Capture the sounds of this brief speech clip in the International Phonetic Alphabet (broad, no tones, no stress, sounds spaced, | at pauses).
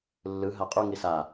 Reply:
lː ɯ ɦ a qʼ u ŋ i s a